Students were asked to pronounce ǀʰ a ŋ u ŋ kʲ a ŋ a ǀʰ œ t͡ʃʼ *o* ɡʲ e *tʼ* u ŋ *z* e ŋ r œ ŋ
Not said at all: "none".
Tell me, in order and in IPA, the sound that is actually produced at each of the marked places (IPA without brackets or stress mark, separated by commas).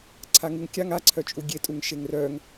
u, tʼ, ʃ